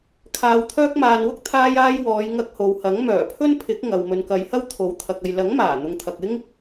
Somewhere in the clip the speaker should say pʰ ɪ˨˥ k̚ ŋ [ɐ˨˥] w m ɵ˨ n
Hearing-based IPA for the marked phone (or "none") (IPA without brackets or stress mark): ɐ˨